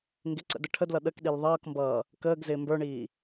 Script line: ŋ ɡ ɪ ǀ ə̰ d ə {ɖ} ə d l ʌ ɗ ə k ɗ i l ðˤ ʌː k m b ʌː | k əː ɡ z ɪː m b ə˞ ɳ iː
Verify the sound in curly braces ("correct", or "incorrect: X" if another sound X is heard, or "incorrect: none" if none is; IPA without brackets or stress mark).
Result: incorrect: ʈʰ